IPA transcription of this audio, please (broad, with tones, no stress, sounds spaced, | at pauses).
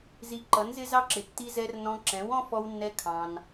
z i˧ ǃ ʌ˨˦ n z ɪ˦ z ɑ˦ ǁ ɪ˨ tː i˦ z ɛ˦ r n ɔ̃˧ ǁ ɛ̃˨˦ w ɔ̃˦ f ɔ˦ w nː ɛ˦ kʰ ɑ̃˧ n